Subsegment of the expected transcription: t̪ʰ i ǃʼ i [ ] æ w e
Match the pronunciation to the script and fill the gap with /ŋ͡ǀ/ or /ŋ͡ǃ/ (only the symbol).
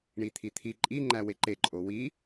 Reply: ŋ͡ǃ